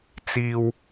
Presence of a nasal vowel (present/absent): absent